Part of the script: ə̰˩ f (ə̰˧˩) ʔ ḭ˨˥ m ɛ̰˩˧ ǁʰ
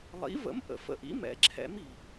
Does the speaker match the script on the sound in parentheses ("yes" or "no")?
yes